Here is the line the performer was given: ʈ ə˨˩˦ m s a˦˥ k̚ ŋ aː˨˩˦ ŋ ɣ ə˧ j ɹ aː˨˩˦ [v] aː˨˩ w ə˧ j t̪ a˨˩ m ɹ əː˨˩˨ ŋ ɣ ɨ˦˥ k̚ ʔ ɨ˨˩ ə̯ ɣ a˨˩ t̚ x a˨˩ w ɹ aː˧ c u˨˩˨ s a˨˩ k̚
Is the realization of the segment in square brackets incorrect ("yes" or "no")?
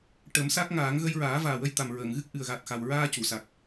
no